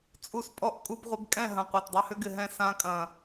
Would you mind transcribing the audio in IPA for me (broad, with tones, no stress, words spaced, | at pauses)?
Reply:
t͡sʼu˦s pʼɔ˦ʔ kʼu˧bʁʷɪ˧b kʼɛ̃˦˨ɦɐ̃˨ qʷɛ˨tdˤɛ˧hʏ˦ɡɪ˨ ɦɛ̃˦˨ sã˧kʼɐ̃˨